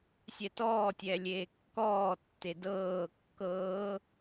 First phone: sʲ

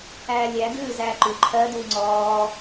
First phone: æː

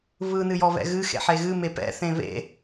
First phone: β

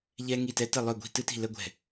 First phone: ʎ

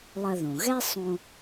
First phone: lˠ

